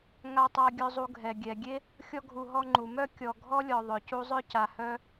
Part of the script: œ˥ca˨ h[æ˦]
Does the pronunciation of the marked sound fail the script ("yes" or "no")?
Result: yes